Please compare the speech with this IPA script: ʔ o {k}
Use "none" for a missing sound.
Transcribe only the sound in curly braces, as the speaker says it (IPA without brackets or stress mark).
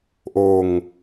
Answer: ŋ